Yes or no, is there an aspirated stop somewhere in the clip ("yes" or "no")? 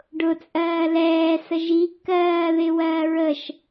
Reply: no